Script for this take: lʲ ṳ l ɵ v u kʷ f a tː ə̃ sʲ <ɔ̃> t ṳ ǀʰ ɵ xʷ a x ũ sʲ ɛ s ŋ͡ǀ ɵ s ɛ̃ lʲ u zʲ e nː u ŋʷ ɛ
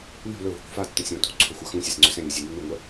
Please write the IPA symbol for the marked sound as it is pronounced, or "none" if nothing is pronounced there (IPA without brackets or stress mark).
ɔ̃